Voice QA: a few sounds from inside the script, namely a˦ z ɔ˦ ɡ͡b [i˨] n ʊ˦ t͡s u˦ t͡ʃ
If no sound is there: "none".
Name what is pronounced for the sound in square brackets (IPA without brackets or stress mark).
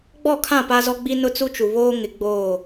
i˦